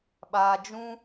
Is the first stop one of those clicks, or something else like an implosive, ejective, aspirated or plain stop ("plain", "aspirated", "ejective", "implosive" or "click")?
implosive